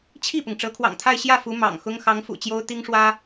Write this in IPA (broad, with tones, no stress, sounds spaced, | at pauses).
t͡ɕʰ i˥˩ p ʊ˩ ŋ ʈ͡ʂ ɤ˧˥ kʰ w ɑ̰˨˩ ŋ t̪ʰ a˥˧ ɪ̯ ɕ j ä˥˩ f u˧˥ m ɑ̰˨˩ ŋ x ʊ˥ ŋ x ɑ˧˥ ŋ f ṵ˨˩ t͡ɕ j o˥ ʊ̯ t̪ i˥ ŋ ʂ w ä˥